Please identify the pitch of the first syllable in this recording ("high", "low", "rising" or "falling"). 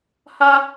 high